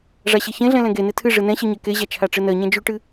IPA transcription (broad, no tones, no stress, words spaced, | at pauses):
ʐaɕeçẽɮɛ̃ lɛ̃ɡene tʰɨ ʐɨnɛ̃ɕɨ ɲɛkeʑa t͡ʃʰaʈ͡ʂɨnɜɲɛ̃ d͡ʒʉʈɨ